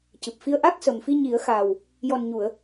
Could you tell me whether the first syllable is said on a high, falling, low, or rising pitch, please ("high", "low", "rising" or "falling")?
low